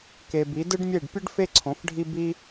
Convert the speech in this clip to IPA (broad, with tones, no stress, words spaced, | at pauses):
ke˨bi˨˦dɯ˦ɖmʲe˦˨ɖ pʲɯ˦ɖfe˦ ǀʰõ˨˦fɖʱi˦ bi˦